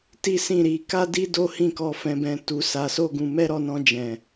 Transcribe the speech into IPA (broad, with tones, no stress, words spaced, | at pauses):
ti˦sĩ˦˨ɾi˧ ka˦di˦ do˦hĩ˦˨kɔ˧ fɛ̃˧bɛ̃˧ tu˧ sa˧so˦ɡũ˧ mɛ˦ɾɔ˦˨nɔ̃˧ d͡ʒɛ̃˨